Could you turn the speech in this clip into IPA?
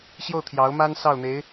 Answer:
ɕ j o˥˩ ʊ̯ t̪ʰ j ɑ˧˥ ʊ̯ m a˥ n s ɑ˥˩ ʊ̯ n̪ e˧˥ ɪ̯

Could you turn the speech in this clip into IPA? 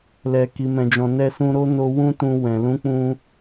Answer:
l ɛ˨ k i˨ m ɛ̃˨ d͡ʒ ɔ̃˨ n ɛ˧ s ũ˧ ɾ o˦ n o˧ w ũ˦ t ũ˧ w ɛ̃˨ l ũ˨˦ k͡p ũ˧

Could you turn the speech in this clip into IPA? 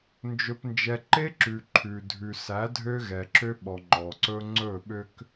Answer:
n d͡ʒ ɵ˨ p n d͡ʒ ɛ˨ ǃ e˦ ǁ ʉ˨ ǃʰ ʉ˨ dʱ ʉ˨ s æ˨˦ dʱ ø˦ ɣ ɛ˨ ǁ ø˦ ɓ ɔ˨ ŋ͡ǃ ɔ˨ ǀ ɵ˦ ŋ͡ǀ ɵ˦˨ ɓ ø˦ k

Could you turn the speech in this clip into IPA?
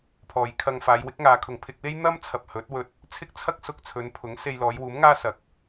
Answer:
pʰ ɔː˨ j kʰ ɐ˧ ŋ f aː˨˧ j w ɪ˨˥ k̚ ŋ aː˨˧ kʰ ʊ˨ ŋ pʰ ɪ˧ k̚ w e˥ j n̪ ɐ˥ m t͡sʰ ɐ˨ p̚ h ɵ˨˥ t̚ w ɵ˧ t̚ | t͡sʰ ɪ˥ k̚ t͡sʰ ɐ˥ k̚ s ʊ˧ k̚ t͡sʰ ɵ˨˧ n pʰ ʊ˨˥ ŋ s e˧ j l ɔː˨˧ j w uː˨˥ m ŋ aː˥ s ɐ˨ k̚

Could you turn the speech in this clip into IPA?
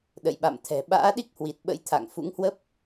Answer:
ɗ ə̰˧˨ j ɓ a̰˧˨ m t̪ʰ ɛ̤˨˩ ɓ a̰ː˧˥ ɗ i˦˥ k̚ h w i˨˩ t̚ ɓ ə̰˧˥ j t̪ʰ a̰˧˨ ŋ f ṵ˧˥ ŋ h w ə˦˥ p̚

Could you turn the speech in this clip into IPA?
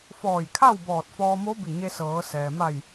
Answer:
f ɔː˧˩ j kʰ a˥˨ w b ɔː˧˩ t̚ f ɔː˧ m o˧˥ b i˧˩ ɲ e˧ s ɤː˩˧ s ɛː˩ m a˧˩ j

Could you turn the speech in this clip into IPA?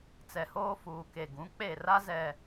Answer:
t͡s ɛ˨ h oː˦ f uː˨ k e˨ ɡ ũ˨˦ k͡p e˦˨ r a˦ z ɛ˨

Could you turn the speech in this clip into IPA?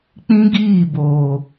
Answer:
k͡p ĩ˦ ɡ iː˦˨ b oː˨

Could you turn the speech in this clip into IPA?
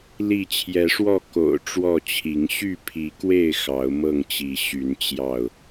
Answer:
l i˥˨ t͡ɕʰ j ɛ˨˦ ʂ w ɔ˥˨ k o̰˨˩ ʊ̯ ʈ͡ʂ w ɔ˥˨ t͡ɕʰ i˨˦ ŋ ɕ y˥˨ pʰ i˨˦ k w e˥˨ ɪ̯ x ɑ˨˦ ʊ̯ m ɤ˥˨ ŋ t͡ɕ i˨˦ ɕ y˨˦ n t͡ɕ j ɑ˥˨ ʊ̯

